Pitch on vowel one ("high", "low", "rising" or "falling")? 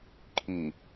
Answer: low